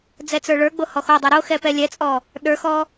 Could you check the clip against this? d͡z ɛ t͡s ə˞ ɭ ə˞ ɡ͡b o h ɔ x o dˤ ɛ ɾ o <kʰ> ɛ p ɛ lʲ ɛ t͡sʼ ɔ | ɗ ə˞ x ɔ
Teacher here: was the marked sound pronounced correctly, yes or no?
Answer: no